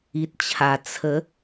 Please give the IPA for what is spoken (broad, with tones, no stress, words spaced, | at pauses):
i˨t̚t͡ɕʰa˨˩ t͡sʰə˨˦